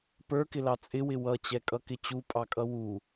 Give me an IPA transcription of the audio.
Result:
pə˞kɪlɑ t͡sʼɪwɪ wʌt͡ɕɛkʼʌkɪ t͡ɕupʼɑkʼʌ wu

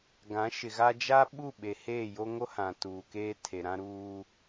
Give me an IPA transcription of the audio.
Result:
ɡã˨˦ʃɪ˨ɣa˦ d͡ʒa˦ ɓu˦˨ɓe˨ heː˦˨jo˦ŋo˦hã˨ tuː˨keː˦ tʰe˨ɾã˦ɾuː˦

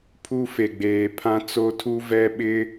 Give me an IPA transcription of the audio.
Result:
pʰu˦fe˨ ɡ͡beː˨pʰã˦ t͡so˦tʰu˦ vɛ˦ ɓɪ˦

